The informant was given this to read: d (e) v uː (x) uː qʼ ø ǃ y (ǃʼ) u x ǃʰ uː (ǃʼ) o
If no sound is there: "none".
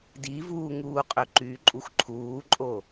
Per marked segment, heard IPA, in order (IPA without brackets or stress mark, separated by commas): i, ŋ, ǃʼ, ǃʼ